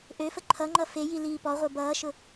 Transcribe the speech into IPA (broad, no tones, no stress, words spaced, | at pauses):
ʔøfə ǃʰʌŋ͡ǃʌ feji liːpɔʁʷə˞ bʌːʃʊ